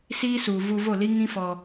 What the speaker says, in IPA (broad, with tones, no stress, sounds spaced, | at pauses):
s iː˦ s u˨ v u˧ v o˦˨ l i˦ ŋ ĩ˦ f ɔ˧